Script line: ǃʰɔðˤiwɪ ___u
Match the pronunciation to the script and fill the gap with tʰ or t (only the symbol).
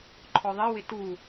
t